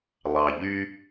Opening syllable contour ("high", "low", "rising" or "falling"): low